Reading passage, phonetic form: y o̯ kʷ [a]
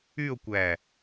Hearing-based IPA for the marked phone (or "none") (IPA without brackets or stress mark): æ